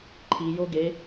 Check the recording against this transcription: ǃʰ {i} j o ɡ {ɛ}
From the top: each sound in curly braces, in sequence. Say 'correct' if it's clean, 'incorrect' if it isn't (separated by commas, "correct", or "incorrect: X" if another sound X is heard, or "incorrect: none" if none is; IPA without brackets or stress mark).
correct, incorrect: e